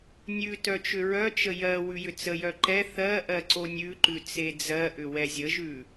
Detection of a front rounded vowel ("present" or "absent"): present